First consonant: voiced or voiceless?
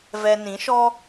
voiced